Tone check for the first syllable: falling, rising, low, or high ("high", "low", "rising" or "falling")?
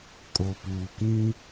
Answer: low